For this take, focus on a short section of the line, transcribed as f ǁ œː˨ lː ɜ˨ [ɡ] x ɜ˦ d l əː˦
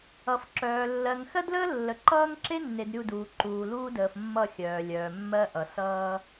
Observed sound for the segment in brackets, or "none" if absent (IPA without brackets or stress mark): ŋ